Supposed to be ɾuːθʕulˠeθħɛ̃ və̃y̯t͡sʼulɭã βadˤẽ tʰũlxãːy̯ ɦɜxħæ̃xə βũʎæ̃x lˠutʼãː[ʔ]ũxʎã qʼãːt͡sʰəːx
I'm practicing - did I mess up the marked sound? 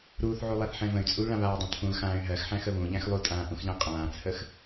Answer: no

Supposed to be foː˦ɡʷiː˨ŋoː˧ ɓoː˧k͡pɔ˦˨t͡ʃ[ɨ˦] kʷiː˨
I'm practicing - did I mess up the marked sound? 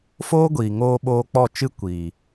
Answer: no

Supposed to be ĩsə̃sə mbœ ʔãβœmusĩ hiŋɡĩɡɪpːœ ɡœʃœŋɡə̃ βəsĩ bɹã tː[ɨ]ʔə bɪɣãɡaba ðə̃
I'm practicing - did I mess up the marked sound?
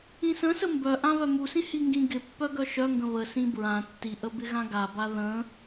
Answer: yes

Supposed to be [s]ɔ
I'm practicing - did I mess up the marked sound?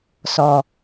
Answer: no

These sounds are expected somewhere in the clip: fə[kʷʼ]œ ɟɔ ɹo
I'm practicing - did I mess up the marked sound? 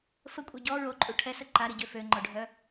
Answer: no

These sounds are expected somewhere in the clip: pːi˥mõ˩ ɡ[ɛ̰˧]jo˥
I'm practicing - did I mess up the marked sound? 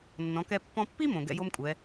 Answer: no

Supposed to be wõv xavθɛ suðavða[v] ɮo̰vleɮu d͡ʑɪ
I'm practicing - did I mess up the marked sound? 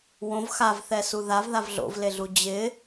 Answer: no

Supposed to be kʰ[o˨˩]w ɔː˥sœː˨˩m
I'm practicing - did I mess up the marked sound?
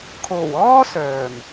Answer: no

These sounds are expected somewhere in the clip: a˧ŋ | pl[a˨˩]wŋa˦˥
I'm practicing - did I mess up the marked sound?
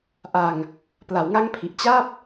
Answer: yes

